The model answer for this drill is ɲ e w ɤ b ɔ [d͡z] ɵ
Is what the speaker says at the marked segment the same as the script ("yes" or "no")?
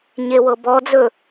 yes